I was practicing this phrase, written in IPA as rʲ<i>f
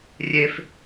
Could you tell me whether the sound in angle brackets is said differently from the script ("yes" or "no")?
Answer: yes